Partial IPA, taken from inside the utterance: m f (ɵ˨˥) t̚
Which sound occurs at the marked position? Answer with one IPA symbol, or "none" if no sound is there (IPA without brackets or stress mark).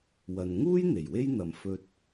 ɵ˧